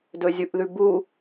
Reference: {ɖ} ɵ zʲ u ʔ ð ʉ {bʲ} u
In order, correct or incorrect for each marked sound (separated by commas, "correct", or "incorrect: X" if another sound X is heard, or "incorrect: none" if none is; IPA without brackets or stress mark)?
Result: incorrect: d, incorrect: b